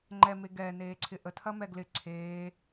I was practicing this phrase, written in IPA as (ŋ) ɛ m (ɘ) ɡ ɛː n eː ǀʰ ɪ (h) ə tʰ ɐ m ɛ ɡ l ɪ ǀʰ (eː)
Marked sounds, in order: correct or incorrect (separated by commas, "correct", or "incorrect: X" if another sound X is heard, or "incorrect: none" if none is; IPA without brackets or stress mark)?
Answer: incorrect: ŋ͡ǃ, incorrect: e, incorrect: ʔ, correct